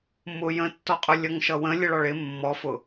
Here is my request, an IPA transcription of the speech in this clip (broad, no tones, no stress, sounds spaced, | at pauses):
m ʊ j ə̃ tː ɔ qʼ ʊ lʲ ʌ ŋ ʃ ʌ w ə̃ lʲ ə ɭ ɒ ɭ ɪ mː ɔ f ʊ